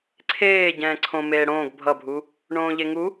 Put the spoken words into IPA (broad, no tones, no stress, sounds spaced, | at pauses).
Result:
ǀʰ eː ɟ ɛ̃ː ǀʰ õ m eː ɽ õː ɡ bʱ ʌ bʱ u | ɳ õː ʎ e ŋ u